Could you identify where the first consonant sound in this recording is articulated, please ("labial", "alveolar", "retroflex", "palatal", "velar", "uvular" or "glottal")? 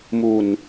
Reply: labial